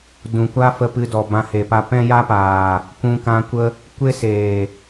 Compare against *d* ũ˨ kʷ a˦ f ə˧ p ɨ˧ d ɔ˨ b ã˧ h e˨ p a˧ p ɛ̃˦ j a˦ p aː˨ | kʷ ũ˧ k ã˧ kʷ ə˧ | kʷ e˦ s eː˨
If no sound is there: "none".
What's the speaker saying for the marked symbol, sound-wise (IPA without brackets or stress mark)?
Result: d